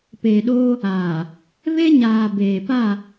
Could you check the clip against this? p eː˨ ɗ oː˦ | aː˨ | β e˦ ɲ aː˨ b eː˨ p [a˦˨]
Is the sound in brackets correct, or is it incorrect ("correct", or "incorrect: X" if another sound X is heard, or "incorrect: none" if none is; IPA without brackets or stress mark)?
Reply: correct